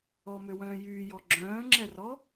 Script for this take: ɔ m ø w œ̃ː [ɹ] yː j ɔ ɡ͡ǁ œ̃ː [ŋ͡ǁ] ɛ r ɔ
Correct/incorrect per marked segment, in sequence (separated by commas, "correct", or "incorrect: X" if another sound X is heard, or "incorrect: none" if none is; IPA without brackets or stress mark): incorrect: j, correct